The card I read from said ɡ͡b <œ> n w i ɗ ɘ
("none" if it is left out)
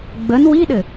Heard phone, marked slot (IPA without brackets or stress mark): ə